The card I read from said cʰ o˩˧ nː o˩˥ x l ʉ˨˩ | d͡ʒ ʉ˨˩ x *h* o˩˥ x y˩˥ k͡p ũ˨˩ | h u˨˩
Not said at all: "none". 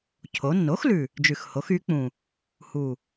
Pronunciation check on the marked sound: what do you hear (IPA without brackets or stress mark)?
h